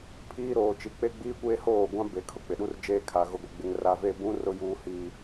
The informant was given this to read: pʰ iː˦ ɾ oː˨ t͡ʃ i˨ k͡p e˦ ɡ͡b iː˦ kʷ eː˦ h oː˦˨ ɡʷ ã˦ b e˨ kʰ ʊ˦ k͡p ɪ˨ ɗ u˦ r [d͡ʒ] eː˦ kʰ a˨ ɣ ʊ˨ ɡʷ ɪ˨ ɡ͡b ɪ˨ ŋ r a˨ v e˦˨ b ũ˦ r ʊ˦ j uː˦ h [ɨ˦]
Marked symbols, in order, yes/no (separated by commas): yes, no